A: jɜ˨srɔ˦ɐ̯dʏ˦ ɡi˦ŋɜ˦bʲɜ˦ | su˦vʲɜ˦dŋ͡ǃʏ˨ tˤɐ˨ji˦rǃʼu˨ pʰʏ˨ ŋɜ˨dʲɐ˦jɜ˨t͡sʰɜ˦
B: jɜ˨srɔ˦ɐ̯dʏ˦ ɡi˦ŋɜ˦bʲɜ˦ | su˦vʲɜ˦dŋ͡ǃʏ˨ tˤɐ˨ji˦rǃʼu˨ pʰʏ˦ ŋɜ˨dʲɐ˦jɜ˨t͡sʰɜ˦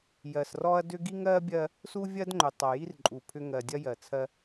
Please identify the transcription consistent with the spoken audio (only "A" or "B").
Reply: B